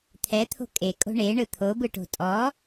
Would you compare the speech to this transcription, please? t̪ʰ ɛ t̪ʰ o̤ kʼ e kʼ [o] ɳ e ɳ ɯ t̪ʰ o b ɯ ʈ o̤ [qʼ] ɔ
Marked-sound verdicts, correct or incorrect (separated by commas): incorrect, incorrect